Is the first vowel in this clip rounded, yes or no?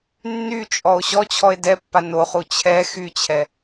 yes